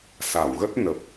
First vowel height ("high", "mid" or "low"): low